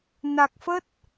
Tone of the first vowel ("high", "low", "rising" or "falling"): low